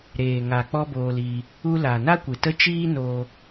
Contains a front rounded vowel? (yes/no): no